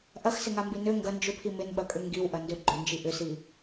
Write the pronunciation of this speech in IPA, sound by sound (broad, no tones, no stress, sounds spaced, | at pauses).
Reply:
ʔ ɐ x s ɪ ŋ a m b i n ø ŋ ɡ ɐ n d͡ʒ ʏ pʰ i m ɪ n ɓ ɐ kʼ ʏ ŋ ɡ i w ʔ ɐ n d ø ɡ͡ǃ ʏ n d͡ʒ i ʔ ʏ s i